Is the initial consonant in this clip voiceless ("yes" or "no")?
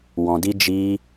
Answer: no